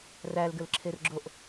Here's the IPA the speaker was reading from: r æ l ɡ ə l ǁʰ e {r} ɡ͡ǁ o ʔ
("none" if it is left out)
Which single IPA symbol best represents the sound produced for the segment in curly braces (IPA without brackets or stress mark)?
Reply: r